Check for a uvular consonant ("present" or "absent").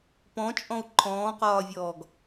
present